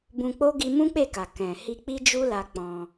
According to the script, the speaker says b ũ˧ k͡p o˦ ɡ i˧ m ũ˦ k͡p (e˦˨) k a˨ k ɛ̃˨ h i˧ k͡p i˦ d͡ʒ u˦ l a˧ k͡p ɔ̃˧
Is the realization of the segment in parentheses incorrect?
no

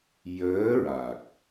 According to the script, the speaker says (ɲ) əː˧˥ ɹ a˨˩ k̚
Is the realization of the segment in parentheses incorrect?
yes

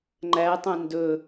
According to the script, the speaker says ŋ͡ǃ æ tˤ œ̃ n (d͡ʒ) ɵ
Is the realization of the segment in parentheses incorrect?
yes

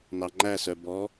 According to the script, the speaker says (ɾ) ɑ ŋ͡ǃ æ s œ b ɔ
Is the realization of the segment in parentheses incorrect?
yes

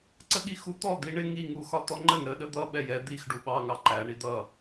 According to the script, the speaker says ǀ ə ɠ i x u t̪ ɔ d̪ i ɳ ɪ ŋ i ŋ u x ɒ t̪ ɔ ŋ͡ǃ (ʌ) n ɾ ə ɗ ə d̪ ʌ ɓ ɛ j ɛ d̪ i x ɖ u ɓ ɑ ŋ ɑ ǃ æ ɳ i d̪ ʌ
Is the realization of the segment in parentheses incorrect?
yes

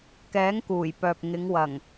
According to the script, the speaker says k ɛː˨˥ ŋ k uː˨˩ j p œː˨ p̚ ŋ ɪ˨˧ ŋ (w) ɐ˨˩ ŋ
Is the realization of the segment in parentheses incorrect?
no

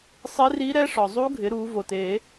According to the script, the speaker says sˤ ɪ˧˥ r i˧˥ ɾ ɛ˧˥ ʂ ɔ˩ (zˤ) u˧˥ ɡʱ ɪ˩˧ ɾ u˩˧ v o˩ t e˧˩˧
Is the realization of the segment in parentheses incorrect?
no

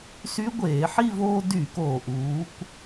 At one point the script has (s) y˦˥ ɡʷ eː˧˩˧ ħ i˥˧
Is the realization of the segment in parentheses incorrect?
no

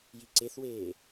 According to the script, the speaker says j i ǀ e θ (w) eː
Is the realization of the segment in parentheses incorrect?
no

